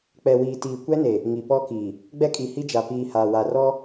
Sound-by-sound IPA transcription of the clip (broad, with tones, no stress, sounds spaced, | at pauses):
k͡p ɛ˨ w iː˨ t iː˨ kʷ ɛ˦ n e˨ | ŋ i˨ p ɔ˦ k iː˨ | ɡ͡b ɛ˦ kʼ i˨ h i˦ d͡ʒ a˨ p iː˨ h aː˨ w a˨ r ɔ˦